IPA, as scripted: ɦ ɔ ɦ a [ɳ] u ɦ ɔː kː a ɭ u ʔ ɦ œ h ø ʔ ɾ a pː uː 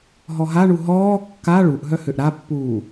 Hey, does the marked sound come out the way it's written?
yes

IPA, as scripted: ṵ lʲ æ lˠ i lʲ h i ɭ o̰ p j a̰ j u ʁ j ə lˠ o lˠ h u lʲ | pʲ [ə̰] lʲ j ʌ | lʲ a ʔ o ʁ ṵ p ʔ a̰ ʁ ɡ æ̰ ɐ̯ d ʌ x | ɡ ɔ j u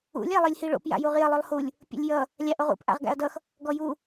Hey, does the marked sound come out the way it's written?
yes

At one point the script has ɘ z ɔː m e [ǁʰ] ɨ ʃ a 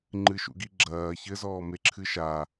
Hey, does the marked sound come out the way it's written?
yes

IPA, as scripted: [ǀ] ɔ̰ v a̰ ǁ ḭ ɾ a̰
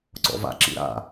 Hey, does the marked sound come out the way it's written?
yes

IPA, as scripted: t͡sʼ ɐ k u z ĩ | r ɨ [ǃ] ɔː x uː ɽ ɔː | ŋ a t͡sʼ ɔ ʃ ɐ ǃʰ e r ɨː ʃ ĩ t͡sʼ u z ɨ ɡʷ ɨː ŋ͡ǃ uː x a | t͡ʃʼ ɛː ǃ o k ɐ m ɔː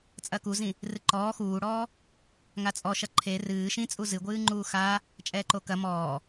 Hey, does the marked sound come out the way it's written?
yes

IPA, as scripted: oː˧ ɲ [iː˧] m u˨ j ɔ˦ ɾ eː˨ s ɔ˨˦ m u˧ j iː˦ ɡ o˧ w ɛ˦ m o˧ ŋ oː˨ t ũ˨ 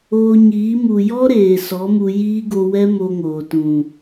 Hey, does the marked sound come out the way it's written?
no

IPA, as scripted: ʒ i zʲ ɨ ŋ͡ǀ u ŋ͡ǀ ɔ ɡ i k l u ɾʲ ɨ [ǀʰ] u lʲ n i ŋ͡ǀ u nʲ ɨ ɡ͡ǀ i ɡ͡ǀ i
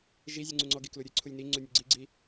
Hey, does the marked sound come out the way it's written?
yes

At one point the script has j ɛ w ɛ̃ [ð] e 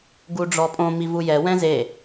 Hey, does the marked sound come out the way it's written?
no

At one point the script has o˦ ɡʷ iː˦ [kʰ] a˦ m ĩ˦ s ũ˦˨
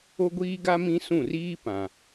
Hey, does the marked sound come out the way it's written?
no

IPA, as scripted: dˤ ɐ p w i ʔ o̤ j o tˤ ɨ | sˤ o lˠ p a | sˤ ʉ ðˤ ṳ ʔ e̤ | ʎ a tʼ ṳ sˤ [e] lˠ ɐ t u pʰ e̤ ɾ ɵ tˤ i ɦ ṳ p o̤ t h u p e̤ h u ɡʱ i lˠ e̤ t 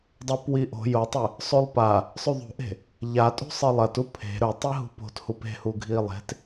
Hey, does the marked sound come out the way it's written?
no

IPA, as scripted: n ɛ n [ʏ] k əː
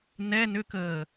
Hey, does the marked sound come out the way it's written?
yes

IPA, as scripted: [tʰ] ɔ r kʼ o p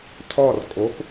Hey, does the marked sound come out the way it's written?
yes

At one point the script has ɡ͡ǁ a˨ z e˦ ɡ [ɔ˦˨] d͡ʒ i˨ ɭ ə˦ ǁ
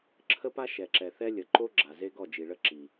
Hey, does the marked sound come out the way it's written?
yes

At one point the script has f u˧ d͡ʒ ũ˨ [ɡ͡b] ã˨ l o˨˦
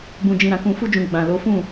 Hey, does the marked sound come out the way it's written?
yes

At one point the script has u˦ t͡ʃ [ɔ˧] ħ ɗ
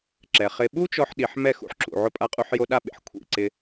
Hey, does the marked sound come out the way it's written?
yes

